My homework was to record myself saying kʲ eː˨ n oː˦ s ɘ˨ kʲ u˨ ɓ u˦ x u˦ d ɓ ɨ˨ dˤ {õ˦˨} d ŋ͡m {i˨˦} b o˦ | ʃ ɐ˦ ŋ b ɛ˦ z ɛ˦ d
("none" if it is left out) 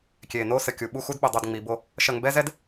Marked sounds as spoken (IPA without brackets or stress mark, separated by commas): o˦˨, i˨˦